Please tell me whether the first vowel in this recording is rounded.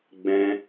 no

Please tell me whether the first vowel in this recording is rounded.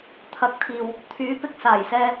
no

